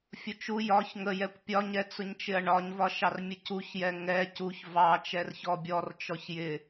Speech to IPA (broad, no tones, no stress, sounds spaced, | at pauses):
fʲ ʊ t͡ʃ u j ɒ ç ŋ ə j ɛ kʷ pʲ ɒ ɲ ɛ t͡s ʊ ɲ t͡ʃ ɪ ɐ̯ ɳ ɒ ɲ v ɒ ʃ ɑ r mʲ ə c u ç j ɛ ŋ ɛ c u ç v ɑ t͡ʃ ɛ r ç ɔ bʲ ɔ r t͡ʃ ɔ ç j ɪ